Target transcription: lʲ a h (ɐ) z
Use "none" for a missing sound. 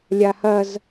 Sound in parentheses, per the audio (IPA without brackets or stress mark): ɐ